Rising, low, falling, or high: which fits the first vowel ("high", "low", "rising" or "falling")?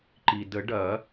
low